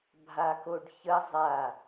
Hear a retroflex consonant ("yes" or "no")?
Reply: yes